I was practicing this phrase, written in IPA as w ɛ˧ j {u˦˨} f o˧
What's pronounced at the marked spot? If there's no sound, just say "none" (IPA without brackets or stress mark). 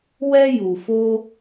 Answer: u˨